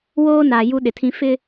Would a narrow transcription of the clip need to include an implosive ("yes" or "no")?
yes